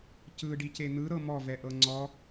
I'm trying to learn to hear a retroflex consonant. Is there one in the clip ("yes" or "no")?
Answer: yes